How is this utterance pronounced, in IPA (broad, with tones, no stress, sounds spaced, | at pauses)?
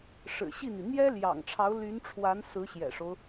ʂ ɻ̩˨˩ ɕ i˥˩ n̪ i˩ n̪ j ɛ˥ l j ɑ̰˨˩ ŋ ʈ͡ʂʰ ɑ˧˥ ʊ̯ l y˧˥ n ʈ͡ʂʰ w a˧˥ n s ɹ̩˧˥ ɕ j ɛ̰˨˩ ʂ o˦ ʊ̯